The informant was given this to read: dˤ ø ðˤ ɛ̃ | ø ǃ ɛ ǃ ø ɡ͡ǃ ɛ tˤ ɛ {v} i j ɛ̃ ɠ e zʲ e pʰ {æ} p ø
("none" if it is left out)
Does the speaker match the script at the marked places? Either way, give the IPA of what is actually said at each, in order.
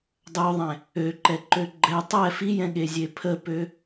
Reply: f, ə

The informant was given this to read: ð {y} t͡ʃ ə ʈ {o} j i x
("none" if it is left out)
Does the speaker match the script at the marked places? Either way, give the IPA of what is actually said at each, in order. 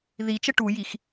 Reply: i, u

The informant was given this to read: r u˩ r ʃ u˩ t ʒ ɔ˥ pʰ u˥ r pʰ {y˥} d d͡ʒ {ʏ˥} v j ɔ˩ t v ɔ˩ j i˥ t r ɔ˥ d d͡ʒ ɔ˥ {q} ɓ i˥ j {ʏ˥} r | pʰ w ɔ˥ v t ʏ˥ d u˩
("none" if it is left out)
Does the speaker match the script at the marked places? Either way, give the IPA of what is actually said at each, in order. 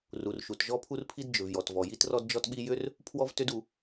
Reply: i˥, ʏ˩, t, ʏ˥

